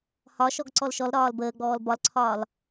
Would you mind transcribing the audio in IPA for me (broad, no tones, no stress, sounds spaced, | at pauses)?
h ɒ ʃ ɔ ɡ ǀ ɔ l ʃ ɔ l ɾ ɒː l b əː ɡ͡b ɔː l b ɒ l ǀʰ ɒː l